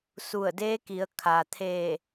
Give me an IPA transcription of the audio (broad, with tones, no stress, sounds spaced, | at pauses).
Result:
s u˧˩ ə̯ d eː˧˥ k i˩˧ ə̯ kʰ a˩ t̪ʰ eː˧˩